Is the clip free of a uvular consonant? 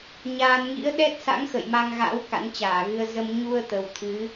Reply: yes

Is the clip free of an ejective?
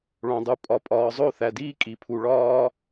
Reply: no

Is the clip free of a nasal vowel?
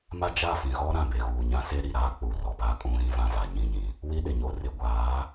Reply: no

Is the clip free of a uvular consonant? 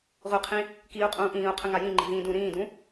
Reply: no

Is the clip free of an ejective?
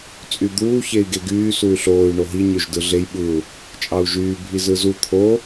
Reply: no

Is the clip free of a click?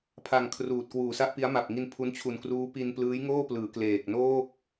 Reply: yes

